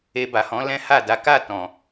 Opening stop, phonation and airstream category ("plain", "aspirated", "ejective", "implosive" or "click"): plain